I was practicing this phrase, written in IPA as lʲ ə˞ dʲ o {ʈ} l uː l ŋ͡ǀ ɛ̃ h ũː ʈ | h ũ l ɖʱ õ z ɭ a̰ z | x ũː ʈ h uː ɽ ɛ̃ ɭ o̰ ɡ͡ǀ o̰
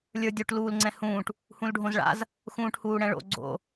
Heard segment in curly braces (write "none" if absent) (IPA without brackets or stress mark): ʈ